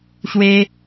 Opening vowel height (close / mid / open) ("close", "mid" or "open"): mid